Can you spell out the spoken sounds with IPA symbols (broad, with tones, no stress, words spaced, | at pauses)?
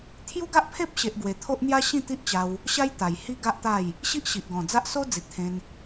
t̪ʰju˦ɡa˦ʔ pʰe˦p̚ɕe˨ʔ ɡwe˨˩t̪ʰo˦ʔn̪ja˦ ɕĩ˥˧t̪i˦ʔt͡ɕa˧w | ɕa˦jt̪a˨˩j hi˦ɡa˦ʔt̪a˥˧j | ɕi˦ʔɕi˨ʔɡɔ̃˨˩d͡za˦ʔ so˦ d͡zi˨t̚t̪ʰẽ˧n